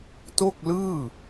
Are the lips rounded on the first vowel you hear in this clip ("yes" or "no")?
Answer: yes